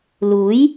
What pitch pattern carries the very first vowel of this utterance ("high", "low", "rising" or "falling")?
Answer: rising